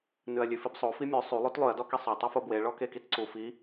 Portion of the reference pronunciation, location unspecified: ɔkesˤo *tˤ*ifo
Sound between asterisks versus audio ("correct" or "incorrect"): correct